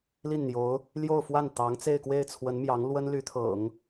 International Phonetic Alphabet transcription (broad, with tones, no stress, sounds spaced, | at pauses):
l i˥˩ n n̪ j o˧˥ ʊ̯ | l j o˥˧ ʊ̯ f w a˥˩ n t̪ ɑ˧˥ ŋ t͡s e˥˧ ɪ̯ k w e˥˩ ɪ̯ t͡sʰ w ə˧˥ n m j ɑ˧˥ ŋ l w ə˥ n l y˧˥ t̪ʰ ɤ̰˨˩˦ ŋ